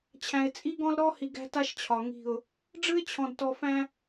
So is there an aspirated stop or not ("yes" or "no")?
yes